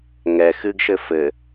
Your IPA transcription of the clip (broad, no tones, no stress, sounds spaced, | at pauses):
ŋ ɛ x ɨ ɡ ʃ ɘ f ɘ